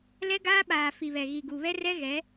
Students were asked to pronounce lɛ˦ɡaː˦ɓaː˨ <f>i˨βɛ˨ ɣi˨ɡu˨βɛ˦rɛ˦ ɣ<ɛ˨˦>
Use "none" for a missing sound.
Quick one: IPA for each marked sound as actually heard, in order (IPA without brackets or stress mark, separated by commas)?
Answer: f, ɛ˨˦